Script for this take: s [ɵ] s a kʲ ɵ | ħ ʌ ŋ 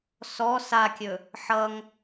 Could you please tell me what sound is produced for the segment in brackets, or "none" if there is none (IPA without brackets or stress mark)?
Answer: ɔ